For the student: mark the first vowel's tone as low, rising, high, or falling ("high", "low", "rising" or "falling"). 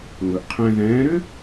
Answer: low